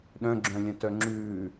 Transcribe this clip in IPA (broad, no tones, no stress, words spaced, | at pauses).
ɗœ̃ɡ͡ǁœ̃lʲœ̃tœ ŋ͡ǁʉː